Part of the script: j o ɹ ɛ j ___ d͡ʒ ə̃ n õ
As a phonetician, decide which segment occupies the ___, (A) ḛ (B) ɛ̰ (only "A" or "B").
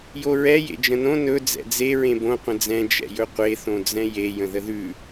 A